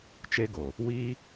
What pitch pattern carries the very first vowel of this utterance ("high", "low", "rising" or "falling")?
high